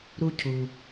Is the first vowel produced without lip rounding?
no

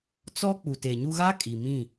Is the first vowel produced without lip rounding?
no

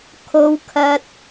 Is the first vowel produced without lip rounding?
no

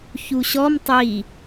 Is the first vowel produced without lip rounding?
no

